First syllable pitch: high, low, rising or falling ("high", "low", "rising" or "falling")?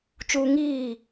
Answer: high